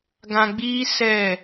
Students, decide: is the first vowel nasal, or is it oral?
nasal